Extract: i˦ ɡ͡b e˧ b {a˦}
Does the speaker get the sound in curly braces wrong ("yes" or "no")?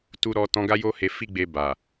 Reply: yes